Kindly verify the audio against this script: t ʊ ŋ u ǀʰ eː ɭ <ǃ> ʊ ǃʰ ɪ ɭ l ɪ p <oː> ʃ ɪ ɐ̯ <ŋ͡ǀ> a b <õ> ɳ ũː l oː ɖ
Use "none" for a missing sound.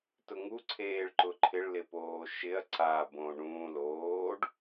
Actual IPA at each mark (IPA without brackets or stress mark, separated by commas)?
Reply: ǃ, oː, ǀ, õ